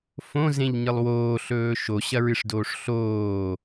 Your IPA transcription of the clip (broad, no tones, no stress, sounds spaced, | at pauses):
f õ z ẽ ʎ ɲ ɨ lˠ w oː ɬ ɵː ʃ o ɕ ɐ ɹ ɨ ʂ d oː ʂ ɬ oː